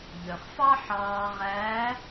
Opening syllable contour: low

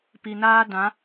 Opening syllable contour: low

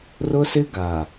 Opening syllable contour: high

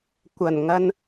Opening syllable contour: low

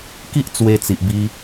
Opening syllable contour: high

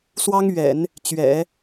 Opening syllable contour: high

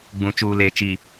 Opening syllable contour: low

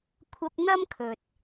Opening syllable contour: high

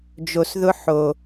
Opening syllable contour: low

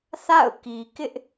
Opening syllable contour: falling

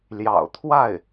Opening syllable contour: low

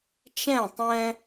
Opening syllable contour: falling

